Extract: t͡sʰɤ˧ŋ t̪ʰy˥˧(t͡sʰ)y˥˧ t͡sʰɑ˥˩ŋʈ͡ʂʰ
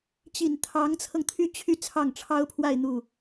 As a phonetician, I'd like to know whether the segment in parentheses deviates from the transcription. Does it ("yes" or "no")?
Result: yes